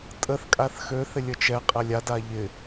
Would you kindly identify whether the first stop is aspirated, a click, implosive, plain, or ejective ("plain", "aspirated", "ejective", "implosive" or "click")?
ejective